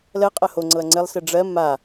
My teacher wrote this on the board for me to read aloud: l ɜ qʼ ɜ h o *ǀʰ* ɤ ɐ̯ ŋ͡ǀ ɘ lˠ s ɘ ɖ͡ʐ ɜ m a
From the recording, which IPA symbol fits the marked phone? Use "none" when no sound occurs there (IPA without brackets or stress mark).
ŋ͡ǀ